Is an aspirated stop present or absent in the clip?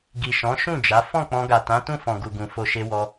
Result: absent